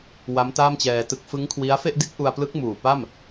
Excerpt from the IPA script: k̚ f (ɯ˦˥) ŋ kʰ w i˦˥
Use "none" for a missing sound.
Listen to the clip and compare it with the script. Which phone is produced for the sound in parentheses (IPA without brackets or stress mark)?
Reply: ɯ˦˥